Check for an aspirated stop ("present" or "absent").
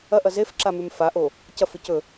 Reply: absent